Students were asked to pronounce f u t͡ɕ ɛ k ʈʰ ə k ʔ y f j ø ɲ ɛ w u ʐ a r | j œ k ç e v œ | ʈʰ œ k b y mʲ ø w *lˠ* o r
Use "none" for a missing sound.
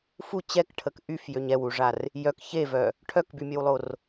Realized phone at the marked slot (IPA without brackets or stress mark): lˠ